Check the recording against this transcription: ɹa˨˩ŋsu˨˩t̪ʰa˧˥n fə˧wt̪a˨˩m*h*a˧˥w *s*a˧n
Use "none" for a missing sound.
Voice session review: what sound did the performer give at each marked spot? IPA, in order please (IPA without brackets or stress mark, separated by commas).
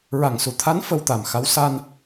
x, s